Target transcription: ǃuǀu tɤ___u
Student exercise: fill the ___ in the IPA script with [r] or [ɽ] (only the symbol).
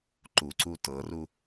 r